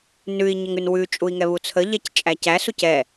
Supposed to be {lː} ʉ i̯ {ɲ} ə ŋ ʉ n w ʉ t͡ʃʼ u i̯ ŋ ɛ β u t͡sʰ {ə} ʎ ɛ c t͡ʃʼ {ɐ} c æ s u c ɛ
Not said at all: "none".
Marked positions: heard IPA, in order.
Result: n, ɲ, ə, æ

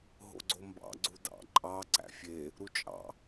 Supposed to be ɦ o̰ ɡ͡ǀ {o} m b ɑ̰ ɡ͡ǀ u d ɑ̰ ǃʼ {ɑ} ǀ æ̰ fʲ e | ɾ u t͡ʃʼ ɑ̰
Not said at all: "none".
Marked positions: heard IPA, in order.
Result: o, ɑ

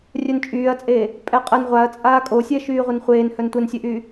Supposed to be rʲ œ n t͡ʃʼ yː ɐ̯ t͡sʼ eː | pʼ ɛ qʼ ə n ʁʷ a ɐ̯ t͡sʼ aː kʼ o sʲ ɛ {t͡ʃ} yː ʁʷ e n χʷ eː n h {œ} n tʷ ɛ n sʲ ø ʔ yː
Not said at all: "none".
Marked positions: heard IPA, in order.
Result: ʃ, œ

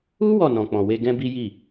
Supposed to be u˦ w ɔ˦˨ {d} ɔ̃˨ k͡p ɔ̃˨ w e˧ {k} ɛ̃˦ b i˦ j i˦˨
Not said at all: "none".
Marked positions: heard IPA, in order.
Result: n, ɡ

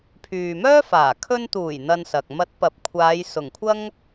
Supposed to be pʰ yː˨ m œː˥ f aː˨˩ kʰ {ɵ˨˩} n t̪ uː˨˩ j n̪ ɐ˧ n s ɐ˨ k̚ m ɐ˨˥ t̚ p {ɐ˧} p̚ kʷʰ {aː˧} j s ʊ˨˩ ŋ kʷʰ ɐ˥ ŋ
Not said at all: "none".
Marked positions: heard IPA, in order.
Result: ɵ˧, ɐ˨, aː˨˧

